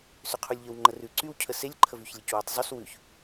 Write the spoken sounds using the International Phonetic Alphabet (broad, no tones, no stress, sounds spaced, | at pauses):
s ʏ qʰ u lʲ ʎ ə w ŋ͡ǃ ə r ʉ ǀ y w cʰ ə s e lʲ ǃʰ ə v y ç lʲ ə c w e tˤ zˤ y s w ʉ ç